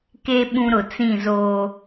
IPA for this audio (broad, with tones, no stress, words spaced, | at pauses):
ke˦ ɓũ˦ɾʊ˨ t͡sĩ˦˨zoː˦